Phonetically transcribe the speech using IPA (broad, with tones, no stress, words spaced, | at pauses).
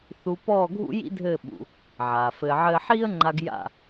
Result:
θu˧ pɔː˦˨ɡʱṵ˦jḭ˦dʱɘː˦˨ ɓṵ˧ | ʕaː˨fɘː˧ʕɘː˦ ħiː˦ə̯ŋ͡ǃa˧ɡ ja̰˦˨